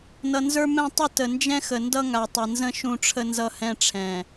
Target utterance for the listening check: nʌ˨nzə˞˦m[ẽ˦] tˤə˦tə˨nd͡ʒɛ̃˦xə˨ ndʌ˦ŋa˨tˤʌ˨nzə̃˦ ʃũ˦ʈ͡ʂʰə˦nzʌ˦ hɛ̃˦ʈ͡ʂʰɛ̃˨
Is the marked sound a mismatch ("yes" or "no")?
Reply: yes